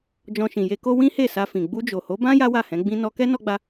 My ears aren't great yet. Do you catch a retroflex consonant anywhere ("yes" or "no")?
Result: no